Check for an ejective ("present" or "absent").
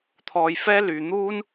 absent